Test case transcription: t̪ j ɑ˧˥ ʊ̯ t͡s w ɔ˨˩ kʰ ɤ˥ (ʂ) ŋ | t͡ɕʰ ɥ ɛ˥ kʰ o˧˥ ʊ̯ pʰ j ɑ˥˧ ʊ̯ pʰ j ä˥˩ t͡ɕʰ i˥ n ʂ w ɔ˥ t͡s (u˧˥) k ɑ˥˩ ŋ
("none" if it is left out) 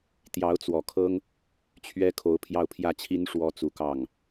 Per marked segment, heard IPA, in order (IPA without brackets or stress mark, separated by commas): none, u˧˥